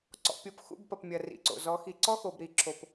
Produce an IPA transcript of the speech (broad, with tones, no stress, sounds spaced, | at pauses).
ǀ ɔ̰˨ pʲ o˨ p x ṵ˦˨ b p ɐ˨ p mʲ ɐ˨ r ḭ˨ ǀ o̰˨ z ɔ˨˦ x i˨ ǀ ɔ˦ x o˨ b ɾ i˨ ǁʰ o˨ p